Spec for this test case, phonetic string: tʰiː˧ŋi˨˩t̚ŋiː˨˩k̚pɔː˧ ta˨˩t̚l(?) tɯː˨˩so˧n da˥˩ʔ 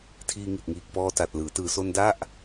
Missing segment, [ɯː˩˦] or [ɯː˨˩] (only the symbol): ɯː˩˦